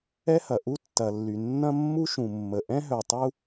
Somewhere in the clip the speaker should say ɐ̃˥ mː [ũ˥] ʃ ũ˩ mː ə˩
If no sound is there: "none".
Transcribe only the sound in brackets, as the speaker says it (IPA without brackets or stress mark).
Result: u˥